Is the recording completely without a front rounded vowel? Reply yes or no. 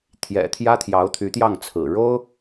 no